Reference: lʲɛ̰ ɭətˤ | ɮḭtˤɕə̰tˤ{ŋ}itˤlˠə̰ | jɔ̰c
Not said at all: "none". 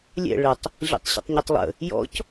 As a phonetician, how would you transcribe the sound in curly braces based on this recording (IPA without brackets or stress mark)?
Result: ɲ